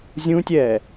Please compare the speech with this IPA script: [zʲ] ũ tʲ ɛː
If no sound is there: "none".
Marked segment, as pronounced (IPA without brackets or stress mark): zʲ